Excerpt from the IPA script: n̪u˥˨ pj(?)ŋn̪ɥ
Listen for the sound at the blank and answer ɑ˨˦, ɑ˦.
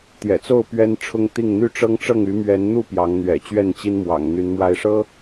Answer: ɑ˨˦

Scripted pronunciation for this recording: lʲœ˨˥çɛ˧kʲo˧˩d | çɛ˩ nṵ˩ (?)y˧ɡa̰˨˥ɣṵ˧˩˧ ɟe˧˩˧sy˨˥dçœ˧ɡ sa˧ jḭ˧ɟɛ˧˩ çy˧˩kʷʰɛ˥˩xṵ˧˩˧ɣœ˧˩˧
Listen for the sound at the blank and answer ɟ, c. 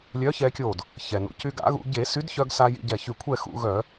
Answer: c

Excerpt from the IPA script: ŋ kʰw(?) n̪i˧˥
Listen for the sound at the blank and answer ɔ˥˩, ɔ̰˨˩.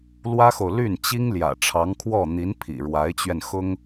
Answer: ɔ˥˩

